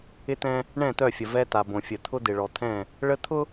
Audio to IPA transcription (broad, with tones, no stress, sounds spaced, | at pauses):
ɪ˦ t̪ ɛ̃˦ | ɳ ɛ̃˦˨ t̪ œ˦˨ fʲ ə˨ v ɛ˦ t̪ a˨ b õ˨ fʲ ə˨ t̪ʰ ʊ˦ d̪ ɪ˨ ɭ ɔ˨ t̪ʰ ɛ̃˦˨ | ɭ ə˦ t̪ʰ ʊ˦